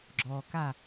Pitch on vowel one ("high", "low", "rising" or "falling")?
low